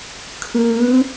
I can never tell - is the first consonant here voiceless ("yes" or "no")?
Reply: yes